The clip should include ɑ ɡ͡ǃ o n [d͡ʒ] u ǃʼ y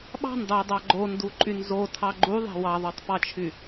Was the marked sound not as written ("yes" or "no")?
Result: yes